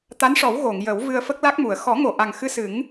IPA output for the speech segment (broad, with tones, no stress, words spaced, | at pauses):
t̪a˧˥nʂɔ˨˩˦w ɣo˨˩˨ŋjə˨˩˦w vɨ˧ə̯fə˦˥k̚la˦˥k̚mu˨˩˨ə̯ xɔ˨˩˦ŋo˨˩˨ʔa˨˩ŋ xɨ˧sɨ˨˩˦ŋ